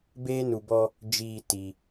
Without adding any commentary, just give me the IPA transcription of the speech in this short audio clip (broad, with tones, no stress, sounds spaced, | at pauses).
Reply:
b eː˦ n u˨ b ɔ˦ | d͡ʒ iː˦˨ t i˨